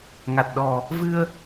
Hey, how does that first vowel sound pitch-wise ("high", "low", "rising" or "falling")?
low